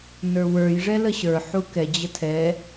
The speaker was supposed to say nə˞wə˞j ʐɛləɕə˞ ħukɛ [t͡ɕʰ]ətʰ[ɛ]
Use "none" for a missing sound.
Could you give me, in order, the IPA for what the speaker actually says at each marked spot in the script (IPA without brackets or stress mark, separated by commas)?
d͡ʑ, ɛ